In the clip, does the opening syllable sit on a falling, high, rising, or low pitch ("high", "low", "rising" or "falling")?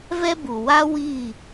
high